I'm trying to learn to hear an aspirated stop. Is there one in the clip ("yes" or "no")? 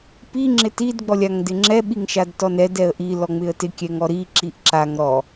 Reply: no